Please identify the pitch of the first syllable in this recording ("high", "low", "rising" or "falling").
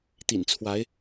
low